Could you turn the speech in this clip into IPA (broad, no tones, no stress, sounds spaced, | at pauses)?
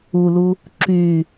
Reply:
u l u | ǁ y